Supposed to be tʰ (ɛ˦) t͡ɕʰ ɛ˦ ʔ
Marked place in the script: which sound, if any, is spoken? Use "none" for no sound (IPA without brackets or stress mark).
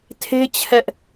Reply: e˦